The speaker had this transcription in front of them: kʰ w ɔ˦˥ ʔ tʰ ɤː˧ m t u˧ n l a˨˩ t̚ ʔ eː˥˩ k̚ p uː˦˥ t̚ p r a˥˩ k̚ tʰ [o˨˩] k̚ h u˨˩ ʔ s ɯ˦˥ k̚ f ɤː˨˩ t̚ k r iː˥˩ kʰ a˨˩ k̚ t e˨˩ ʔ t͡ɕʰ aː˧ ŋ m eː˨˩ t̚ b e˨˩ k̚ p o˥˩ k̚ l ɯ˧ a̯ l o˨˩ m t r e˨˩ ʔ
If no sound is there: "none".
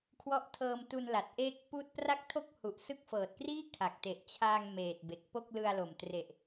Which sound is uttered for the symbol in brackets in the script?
o˥˩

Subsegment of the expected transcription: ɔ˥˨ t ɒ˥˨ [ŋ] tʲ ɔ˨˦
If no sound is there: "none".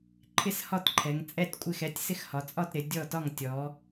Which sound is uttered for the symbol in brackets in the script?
ŋ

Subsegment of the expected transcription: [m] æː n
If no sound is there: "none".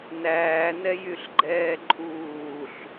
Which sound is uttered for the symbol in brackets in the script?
n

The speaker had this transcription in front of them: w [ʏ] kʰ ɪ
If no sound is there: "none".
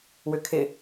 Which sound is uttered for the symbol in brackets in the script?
ʏ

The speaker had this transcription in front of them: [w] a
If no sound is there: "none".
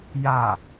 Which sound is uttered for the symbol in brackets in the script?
j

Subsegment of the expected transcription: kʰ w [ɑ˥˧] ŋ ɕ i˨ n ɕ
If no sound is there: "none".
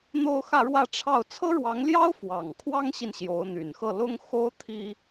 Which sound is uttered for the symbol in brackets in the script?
ɑ˥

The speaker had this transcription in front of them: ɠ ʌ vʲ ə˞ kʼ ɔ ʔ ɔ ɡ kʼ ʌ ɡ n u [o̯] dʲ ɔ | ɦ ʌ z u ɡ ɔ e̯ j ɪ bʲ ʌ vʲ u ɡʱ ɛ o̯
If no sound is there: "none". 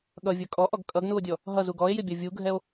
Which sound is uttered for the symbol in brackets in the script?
o̯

